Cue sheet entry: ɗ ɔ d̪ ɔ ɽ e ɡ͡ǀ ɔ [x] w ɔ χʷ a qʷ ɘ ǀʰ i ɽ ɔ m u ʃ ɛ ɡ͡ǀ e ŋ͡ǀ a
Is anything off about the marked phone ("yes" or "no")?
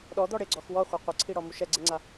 no